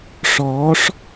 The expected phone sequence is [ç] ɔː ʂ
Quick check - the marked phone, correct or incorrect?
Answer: incorrect: ʂ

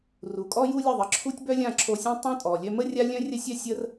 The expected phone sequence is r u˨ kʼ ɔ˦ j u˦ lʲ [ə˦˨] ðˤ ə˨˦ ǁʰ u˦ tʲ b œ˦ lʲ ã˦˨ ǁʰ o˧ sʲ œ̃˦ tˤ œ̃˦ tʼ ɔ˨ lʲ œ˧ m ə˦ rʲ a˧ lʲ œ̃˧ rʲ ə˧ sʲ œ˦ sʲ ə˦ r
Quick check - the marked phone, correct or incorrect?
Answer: correct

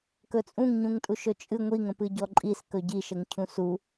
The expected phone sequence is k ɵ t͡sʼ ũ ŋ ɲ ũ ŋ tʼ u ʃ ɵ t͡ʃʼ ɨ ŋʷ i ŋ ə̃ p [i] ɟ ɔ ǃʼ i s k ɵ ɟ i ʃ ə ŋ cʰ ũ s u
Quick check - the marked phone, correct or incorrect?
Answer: incorrect: ɨ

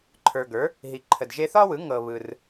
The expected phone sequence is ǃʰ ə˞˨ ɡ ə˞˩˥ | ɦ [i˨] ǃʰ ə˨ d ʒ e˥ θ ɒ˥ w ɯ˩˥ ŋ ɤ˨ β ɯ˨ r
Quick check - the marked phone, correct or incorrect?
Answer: correct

